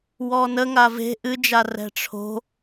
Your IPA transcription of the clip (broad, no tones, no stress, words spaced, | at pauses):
wɔnəŋa ve̤ ʔɨd͡ʒa rɛ̤ʈ͡ʂʰo̤